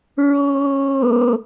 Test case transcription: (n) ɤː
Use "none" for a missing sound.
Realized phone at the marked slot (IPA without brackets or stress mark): ɹ